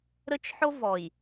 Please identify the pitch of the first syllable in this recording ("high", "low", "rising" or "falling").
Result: high